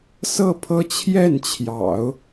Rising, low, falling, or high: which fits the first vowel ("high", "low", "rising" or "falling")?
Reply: falling